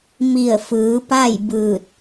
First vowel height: high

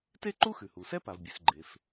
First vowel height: mid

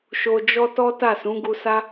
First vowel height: mid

